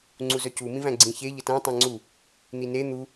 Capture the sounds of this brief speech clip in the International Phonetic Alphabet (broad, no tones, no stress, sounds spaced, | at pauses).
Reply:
ŋ͡ǀ u z œ c u m ĩ v æ̃ ɡ͡ǀ ĩ ç e ʎ ə t æ̃ tˤ ẽ ŋ͡ǀ u | n̪ i n e n̪ u